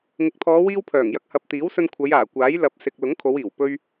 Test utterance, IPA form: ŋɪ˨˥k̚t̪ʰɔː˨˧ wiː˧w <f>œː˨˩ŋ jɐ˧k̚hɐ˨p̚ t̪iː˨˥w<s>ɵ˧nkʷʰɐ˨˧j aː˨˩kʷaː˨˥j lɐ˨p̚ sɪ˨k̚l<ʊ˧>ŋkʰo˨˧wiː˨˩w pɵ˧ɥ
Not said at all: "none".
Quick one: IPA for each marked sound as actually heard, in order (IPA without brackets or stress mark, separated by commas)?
pʰ, s, ʊ˨˥